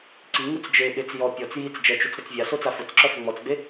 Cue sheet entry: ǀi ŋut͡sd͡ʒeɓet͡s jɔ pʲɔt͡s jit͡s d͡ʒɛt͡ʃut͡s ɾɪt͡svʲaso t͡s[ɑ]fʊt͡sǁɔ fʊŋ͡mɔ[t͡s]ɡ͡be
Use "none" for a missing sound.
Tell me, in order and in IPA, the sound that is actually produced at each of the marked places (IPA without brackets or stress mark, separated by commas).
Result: a, t͡s